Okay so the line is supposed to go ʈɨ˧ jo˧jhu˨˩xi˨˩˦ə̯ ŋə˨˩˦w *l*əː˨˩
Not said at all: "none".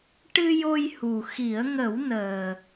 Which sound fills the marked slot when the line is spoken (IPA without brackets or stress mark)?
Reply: n